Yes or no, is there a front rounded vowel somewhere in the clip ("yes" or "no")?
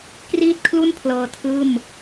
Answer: no